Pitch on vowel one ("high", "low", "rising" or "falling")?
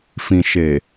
low